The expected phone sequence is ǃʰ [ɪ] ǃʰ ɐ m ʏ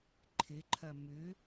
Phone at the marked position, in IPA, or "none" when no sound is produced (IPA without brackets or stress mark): ɪ